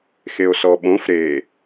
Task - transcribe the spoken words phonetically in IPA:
xeo̯sɔɓõf ɾe

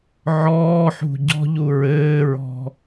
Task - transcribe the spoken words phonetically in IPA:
ʕɔːħṳ ɟɔ̤ʎu ɹɘːɹɔ̤

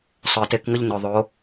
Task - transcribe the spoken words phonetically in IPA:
sˤœ˨te˧kŋə˦ʎ nɵ˨ðˤo˨˦

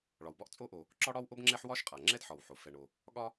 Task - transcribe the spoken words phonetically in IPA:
ɭɒ˩wbɒ˥ʔt͡sʼo˥ʔo˩ | ǁɒ˥ɽɒ˥w ʔo˥bŋ͡ǁɛ˥ħwɒ˥ʃ qʼa˩ŋ͡ǁɛ˥dħɒ˩w ħo˩ fɛ˩ɳo˩ | ɠɒ˥

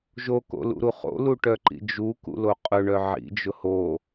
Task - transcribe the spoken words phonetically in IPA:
ʒoko̰lṵɾu χo̰luʈœǃḭ d͡ʒukṵlo qʼʊɳœ ʕḭd͡ʒʊ ho

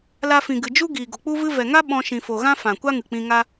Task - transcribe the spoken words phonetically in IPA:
la˧fĩ˨ɡɨ˨ d͡ʒu˦ ɡiː˨ɡo˨k͡pu˦ vɨ˦ vɛ˨ŋa˦ ɓɔ̃˧ʃĩ˨fo˨ɣã˦ fã˨ kʷa˦ŋɨ˨k͡pĩ˧ŋa˦

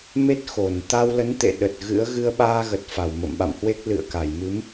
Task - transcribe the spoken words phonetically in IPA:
me˦˥t̚xo˧˩n t̪a˧wlə˨˦nt̪ḛ˧˨ ɗə˨˩t̚ɣɨ̰˧˥ə̯ ɣɨ˧ə̯ɓaː˧ɣə˨˩t̚ fa˧˩wmə̰˧˨mɓa̰˧˨mhwe˦˥k̚ lɨ̰˧˨ə̯ ka˧˩jmɨ˨˦m

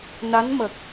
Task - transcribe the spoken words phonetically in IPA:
na˧˥nmə˨˩k̚

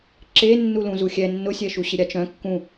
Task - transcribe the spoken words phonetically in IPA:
ǁe nːulũzuxʲɛ nːʊsʲɛʃu ɕɪɾʲat͡ʃœ̃ kːũ

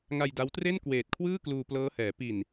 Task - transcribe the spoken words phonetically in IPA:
ŋa˧jda˦˥wtre˥˩n kweː˨˩t̚kʰwɯː˥˩ kluː˧plɤː˦˥hɛː˩˦ pi˨˩n

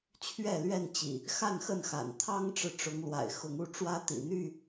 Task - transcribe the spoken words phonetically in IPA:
t͡ɕʰɥɛ˥˨lɥɛ˥˨nt͡ɕḭ˨˩ | xa˥˨nxə˥˨nxa̰˨˩n t̪ʰɑ˦ŋʈ͡ʂɻ̩˨ʈ͡ʂʊ˨˦ŋ lwa̰˨˩ɪ̯xʊ˨˦ŋu˦ʈ͡ʂwä˦ t̪ḭ˨˩n̪y˥˨

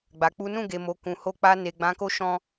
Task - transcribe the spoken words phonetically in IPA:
ɡ͡ba˨ k͡pu˨˦ nũ˦˨ɡe˨mo˨ kũ˨ho˧k͡pa˧ ne˨ɡ͡bã˨˦ ko˦ʃɔ̃˦

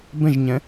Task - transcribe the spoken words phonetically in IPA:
bə̃ʒɲə̃

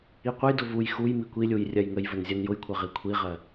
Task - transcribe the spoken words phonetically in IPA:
iqʷəjdʊ vuj xuj mikʷilʲuj rʲɜjŋəjvən zʲɜnjʊjkʷʰɜ ʁikʷʰiʁɜ

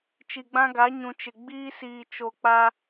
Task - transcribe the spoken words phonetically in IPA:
t͡ʃi˨ɡ͡bã˦ɡa˨˦ ɲũ˨t͡ʃɪ˨ ɡ͡biː˦siː˨t͡ʃo˨ k͡pa˦

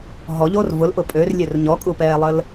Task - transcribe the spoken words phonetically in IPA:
ɦɔʎoːr vʊlʔʊ pʼørlʲør ɲɔkʼupɛːlˠəl

